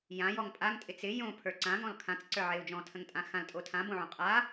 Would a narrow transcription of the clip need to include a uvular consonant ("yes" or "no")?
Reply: yes